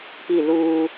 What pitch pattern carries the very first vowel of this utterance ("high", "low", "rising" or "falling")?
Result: falling